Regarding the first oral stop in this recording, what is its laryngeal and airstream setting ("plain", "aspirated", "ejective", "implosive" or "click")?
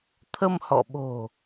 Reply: aspirated